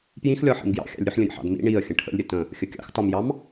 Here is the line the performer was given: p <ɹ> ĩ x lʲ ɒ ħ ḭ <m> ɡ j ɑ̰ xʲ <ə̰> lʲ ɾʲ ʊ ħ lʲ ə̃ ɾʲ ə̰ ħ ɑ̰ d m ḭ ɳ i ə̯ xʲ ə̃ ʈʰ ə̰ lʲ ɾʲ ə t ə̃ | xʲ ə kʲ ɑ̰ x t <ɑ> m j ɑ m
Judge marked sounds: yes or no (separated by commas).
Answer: no, yes, no, no